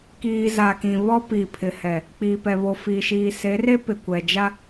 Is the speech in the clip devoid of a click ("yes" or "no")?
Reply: yes